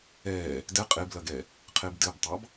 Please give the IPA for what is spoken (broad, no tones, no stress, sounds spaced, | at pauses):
ɛ | d ɛ qʼ e b l ɐ ɡ ɛ | qʰ e b d ɘ b tˤ ɑ b